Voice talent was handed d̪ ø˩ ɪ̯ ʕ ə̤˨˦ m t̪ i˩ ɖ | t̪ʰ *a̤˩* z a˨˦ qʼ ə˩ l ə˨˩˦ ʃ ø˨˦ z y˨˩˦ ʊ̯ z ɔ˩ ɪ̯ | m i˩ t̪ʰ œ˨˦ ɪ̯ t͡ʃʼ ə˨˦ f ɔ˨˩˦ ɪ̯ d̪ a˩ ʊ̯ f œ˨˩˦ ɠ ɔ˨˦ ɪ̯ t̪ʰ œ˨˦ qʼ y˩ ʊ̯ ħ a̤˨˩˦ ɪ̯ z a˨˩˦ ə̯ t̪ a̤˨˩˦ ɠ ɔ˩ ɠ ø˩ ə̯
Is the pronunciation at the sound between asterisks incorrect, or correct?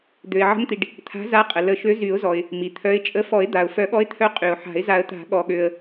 incorrect